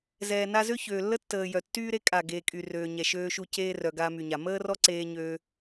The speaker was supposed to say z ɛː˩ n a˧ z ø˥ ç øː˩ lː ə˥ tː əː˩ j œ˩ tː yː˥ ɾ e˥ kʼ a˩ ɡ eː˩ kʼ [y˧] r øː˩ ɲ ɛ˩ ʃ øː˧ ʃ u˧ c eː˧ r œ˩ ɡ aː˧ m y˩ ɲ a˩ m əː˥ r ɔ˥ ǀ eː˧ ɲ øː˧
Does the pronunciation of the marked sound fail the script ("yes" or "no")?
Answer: yes